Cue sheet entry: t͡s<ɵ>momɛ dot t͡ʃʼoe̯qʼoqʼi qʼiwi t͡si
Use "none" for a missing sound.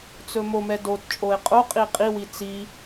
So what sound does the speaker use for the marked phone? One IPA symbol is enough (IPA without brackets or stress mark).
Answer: ɵ